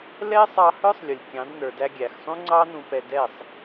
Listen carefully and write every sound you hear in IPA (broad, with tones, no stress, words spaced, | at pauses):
lɛ˦sˤɑ˧ hə˞˦sˤlʲʊ˨lʲ kʲɑ̃˨˦dnə˞˨ dæ˧ɡʲæ˨xsˤũ˦ŋ͡ǀɑ˦ nũ˧pɛ˧dɛ˦˨sˤ